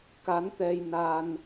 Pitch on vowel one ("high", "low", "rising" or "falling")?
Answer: rising